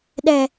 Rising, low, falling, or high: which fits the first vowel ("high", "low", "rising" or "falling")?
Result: high